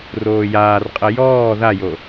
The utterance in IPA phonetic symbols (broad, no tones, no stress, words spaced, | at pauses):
roːjaːrqʼɐ jɔː ðajo